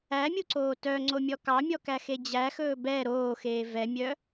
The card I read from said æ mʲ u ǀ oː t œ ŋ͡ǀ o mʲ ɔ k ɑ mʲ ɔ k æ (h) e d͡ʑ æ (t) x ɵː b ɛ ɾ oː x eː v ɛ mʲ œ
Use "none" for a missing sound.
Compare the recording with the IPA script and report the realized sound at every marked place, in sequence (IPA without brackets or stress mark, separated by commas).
x, none